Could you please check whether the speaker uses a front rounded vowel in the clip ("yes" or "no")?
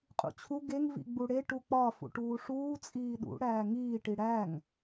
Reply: no